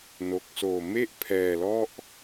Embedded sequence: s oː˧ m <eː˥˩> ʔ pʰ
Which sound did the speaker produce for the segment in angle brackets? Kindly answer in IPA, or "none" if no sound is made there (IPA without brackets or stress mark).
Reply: e˥˩